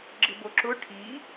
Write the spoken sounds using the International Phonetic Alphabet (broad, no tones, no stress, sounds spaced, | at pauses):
ɡ͡ǁ ɪ b o ǁ ʊ ʈʰ i